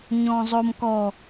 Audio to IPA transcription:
ɲ ɔ̃ zˤ o m k ɔ

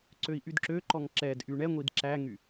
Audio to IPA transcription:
ǀ ø i̯ ʔ y d ǁ ø ǃ ɔ ŋ ǁ ɛ d ʔ y ɳ ɛ ŋʷ i d ǁ æ ŋ y

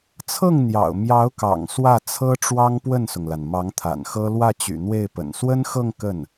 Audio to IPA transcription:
t͡sʰ ɤ˥˩ ŋ n̪ j ɑ̰˨˩ ʊ̯ m j ɑ˧˥ ʊ̯ k ɑ̰˨˩ ŋ s w ä˥˩ t͡sʰ ɤ˥ ʈ͡ʂ w ɑ˥ ŋ p w ə˥˩ n s ʊ˩ ŋ l a˩ n m ɑ˧˥ ŋ t̪ʰ a̰˨˩ n x ɤ˥ l w ä˥˩ t͡ɕ y̰˨˩ n̪ w e˥˩ ɪ̯ p ə̰˨˩ n s w ə˥ n x ɤ˥˧ ŋ k ə˥˩ n

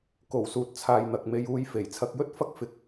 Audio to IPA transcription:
k o˨˩ w s uː˨ t̚ t͡sʰ aː˨ j n̪ ɐ˨ k̚ m e˧ j uː˧ j f e˨˩ j t͡sʰ ɐ˧ k̚ j ɵ˥ t̚ f ɐ˥ k̚ f ɪ˨˥ k̚

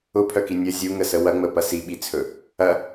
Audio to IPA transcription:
ʊ pʰ œ k i nʲ ə zʲ u ŋ ə s ə w ɐ ŋ͡m ə p ɐ s i ɓ i t͡sʰ ɵ | ɐ

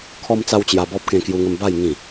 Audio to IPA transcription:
kʰ ɔ˦ m t͡s a˦ w t͡ɕ j a˧ b ɔ˦ p̚ k ẽ˧ k j u˧ ŋ ə˧ m b a˥˧ j ŋ ĩ˥˧

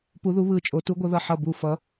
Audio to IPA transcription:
p u˧˥ ð u˧˥ β ɯ˧˥ t͡ʃʼ o˧˥ t u˧˥ ɡʷ ʌ˧˥ ð ʌ˦˨ ħ ʌ˦˨ b u˦˨ f ʌ˧˥

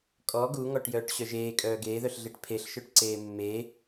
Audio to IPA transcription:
kʼ ɔ ɡ u ŋ ɔ ʈ j œː ʈ ɕ œ ʒ eː kʼ œː ɡ eː ð œ ɬ ɮ e ʈ pʰ e ɬ ʃ œ ʈ ǀ eː mː e

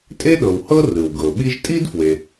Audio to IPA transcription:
tʼ e˥ ɗ ɤ˨ w h ɤ˥ r ɯ˩ w ɡ ɤ˩ ɓ i˦ ʒ tʼ i˥ d f w e˨

